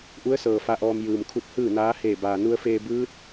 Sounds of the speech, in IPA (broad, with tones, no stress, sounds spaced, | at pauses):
ʔ u˧˥ ə̯ s ɤː˩ f a˧˥ ʔ ɔː˧ m j ɯː˩ m kʰ u˧ t̚ h ɯː˥˨ n aː˧˥ h eː˧˩ b aː˩ n u˧ ə̯ f eː˧ b ɯː˧˥ t̚